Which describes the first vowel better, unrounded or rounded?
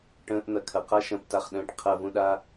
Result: unrounded